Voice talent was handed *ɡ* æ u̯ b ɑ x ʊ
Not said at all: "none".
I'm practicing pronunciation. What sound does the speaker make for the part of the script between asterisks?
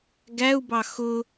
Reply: ɡ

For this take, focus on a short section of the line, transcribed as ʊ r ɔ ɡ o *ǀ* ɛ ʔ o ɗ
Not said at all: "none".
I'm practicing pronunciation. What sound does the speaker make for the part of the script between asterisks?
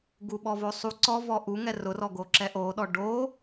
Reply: ǁ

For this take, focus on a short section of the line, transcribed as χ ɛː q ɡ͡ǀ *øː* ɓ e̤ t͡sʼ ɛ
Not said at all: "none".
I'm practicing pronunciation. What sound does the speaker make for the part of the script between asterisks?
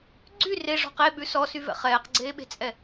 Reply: eː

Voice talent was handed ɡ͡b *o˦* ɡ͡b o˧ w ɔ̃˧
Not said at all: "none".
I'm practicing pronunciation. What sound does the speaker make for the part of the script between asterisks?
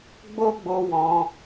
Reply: o˦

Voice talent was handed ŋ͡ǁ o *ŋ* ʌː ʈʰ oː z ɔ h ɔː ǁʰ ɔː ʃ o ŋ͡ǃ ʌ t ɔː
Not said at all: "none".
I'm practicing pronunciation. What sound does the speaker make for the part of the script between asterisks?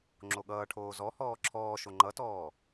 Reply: ɠ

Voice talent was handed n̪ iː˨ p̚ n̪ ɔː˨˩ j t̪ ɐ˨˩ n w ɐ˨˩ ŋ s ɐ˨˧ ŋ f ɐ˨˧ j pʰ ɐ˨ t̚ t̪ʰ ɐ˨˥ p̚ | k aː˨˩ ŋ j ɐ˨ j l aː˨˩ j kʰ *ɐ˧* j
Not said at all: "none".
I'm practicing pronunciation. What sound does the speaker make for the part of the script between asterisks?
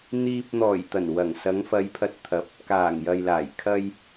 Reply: ɐ˧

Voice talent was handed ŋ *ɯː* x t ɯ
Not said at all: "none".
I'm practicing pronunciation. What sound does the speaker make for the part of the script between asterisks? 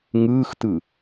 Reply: ɯː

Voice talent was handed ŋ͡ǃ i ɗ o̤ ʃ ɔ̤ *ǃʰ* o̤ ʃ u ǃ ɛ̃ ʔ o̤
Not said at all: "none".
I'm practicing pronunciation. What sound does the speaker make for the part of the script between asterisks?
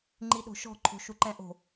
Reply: ǃʰ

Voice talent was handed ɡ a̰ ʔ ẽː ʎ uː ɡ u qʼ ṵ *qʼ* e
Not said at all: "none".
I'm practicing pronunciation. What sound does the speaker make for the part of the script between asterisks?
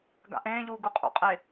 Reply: qʼ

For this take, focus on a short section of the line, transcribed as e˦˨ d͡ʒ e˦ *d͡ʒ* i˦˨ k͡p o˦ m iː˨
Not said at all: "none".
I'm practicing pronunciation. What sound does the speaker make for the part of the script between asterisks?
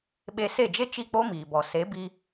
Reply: t͡ʃ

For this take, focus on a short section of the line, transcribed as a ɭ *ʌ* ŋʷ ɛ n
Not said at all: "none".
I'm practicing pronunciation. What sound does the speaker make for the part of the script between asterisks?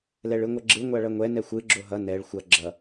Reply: ʌ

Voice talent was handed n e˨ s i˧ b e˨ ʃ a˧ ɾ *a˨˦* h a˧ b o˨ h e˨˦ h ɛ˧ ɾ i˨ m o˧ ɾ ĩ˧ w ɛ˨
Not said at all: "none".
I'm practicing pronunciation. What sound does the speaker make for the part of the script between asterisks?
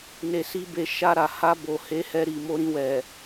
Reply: a˨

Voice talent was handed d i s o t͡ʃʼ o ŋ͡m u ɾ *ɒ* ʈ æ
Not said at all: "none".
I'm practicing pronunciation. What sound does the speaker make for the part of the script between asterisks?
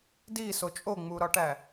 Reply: ɒ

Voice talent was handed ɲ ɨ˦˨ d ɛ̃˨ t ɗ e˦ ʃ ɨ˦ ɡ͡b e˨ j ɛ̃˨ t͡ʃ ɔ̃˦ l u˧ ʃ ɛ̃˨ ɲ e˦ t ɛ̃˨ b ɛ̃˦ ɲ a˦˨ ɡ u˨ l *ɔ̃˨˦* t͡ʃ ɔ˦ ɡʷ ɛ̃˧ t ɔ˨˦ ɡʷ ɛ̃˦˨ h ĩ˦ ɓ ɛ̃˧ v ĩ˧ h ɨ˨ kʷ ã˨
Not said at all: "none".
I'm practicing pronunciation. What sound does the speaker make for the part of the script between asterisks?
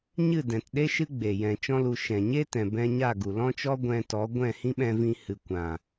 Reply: ɔ̃˦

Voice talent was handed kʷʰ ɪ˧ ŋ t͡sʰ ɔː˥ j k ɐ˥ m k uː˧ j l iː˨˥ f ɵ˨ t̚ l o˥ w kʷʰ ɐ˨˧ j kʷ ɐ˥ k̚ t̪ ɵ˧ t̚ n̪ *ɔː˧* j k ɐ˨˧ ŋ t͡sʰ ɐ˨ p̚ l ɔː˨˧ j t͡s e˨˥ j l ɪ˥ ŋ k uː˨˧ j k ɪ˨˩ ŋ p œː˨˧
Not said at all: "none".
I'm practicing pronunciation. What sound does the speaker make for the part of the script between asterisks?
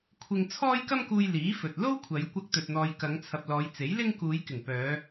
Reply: ɔː˧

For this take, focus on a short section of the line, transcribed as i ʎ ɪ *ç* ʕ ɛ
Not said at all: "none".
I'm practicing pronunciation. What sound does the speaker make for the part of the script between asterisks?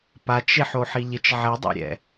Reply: t͡ʃ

